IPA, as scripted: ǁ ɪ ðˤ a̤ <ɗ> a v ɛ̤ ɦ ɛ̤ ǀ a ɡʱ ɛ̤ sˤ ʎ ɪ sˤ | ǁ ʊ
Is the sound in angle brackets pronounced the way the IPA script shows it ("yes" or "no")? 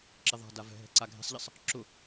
no